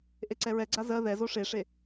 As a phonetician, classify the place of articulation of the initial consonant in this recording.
glottal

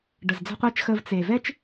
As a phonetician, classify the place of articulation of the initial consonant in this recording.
retroflex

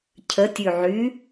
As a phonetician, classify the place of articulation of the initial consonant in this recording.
palatal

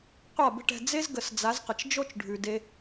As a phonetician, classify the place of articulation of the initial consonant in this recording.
uvular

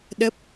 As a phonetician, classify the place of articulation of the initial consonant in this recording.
alveolar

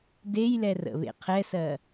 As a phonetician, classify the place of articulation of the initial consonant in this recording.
alveolar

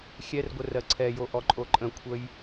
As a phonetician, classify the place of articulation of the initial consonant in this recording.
velar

